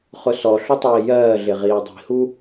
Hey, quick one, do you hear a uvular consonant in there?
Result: yes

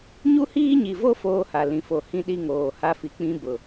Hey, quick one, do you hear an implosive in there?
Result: yes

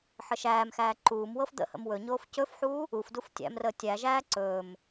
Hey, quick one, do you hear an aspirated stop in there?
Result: no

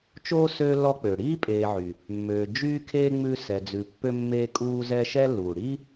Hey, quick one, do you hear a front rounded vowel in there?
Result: yes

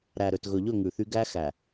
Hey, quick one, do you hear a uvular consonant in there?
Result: no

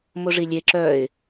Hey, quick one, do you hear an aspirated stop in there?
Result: no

